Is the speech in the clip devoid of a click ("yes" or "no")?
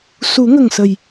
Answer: yes